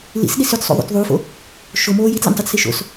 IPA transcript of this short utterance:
l ḭ s ɗ i s ʏ t sˤ o̰ ðˤ ṵ t ðˤ u f o̰ | ʃ o m oː j i t l ḭ nʲ tˤ u t s i ʃ o̰ s

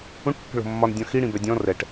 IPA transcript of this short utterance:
ũ ʈ pː ə̤ ɭ o̤ mː ɒ n dʲ ɔ̃ x i ɽ ĩ b ɛ dʲ ɔ̃ r ɛ ʈ

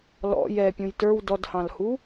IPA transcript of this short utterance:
l ɔ̰ j ɛ pʲ ũ j t ə˞ w d ɔ d h ɑ̃ l h u

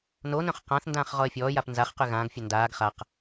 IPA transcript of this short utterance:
n o n œ̃ χ q ã θ n d ãː χ ʁ ɔ ə̯ fʲ ɔː j a p n z a χ q y ɣ ãː ɡ fʲ œ n d aː ɡ χ a q

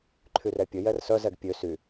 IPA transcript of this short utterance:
ǃʰ y r ɛ pʲ ə j ɛ r s œ z ɛ ɡ pʲ ø s y

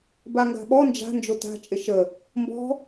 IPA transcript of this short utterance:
b a ŋ ɡ a̤ ɓ ɔ n d͡ʒ a̤ n d͡ʒ o t a̤ t͡ʃʼ ɪ ʃ ə | m b ɔ̤

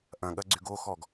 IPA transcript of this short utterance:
ʔ ɐ̃ ɠ ɐ ɡ͡ǀ y ɡ o x ɔ ɡ

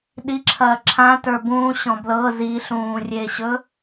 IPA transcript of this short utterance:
ɗ i ǁʰ ɐː ǁʰ ã t ə˞ b ũː ɕ ɔ̃ b l ɤ z i ɬ ũː rʲ e ɕ ɵ

